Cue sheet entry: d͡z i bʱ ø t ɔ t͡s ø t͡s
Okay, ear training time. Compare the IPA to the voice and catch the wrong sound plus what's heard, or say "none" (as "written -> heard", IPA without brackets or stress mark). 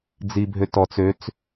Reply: none